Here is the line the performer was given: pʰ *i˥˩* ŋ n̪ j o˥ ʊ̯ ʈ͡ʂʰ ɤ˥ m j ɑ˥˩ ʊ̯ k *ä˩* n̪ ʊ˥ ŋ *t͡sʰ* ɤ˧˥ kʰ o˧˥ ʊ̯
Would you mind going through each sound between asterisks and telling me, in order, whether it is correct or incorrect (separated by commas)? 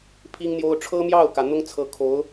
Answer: incorrect, correct, correct